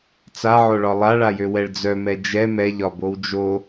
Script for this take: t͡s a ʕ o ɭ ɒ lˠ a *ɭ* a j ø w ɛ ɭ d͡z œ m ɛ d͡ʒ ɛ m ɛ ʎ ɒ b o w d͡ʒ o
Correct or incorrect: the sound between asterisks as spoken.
correct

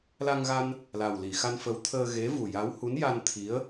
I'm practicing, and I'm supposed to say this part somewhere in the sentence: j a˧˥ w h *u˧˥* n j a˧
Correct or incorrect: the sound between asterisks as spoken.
correct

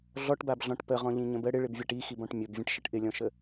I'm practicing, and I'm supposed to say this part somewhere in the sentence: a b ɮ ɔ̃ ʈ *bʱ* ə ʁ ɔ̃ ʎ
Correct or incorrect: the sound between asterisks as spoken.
incorrect: p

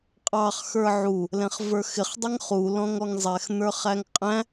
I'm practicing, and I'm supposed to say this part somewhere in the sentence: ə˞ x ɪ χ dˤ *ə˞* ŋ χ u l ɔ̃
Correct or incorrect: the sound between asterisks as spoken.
incorrect: ʌ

